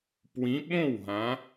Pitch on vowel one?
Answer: rising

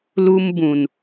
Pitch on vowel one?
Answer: high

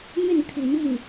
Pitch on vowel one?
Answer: falling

